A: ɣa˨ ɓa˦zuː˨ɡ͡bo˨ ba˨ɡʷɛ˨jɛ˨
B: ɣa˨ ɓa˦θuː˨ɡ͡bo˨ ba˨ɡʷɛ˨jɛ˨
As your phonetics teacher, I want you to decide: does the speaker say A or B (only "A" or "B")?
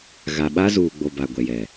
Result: A